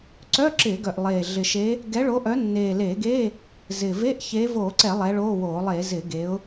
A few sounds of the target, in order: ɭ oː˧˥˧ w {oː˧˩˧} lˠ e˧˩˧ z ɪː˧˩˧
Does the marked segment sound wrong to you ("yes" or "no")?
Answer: no